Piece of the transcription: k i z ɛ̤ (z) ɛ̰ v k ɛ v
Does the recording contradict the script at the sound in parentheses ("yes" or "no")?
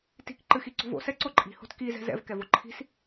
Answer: no